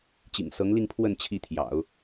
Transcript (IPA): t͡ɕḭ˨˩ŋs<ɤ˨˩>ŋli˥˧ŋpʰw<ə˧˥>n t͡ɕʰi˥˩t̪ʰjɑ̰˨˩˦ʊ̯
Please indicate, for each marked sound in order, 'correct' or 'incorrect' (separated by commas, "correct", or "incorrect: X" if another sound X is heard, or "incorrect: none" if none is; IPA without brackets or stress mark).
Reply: incorrect: ɤ˧˥, incorrect: ə˥˧